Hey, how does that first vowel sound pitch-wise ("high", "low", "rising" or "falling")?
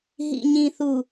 low